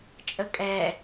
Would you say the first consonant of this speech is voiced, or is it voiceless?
voiceless